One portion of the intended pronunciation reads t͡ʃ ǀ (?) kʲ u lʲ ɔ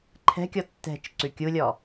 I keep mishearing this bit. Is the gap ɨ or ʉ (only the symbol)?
ʉ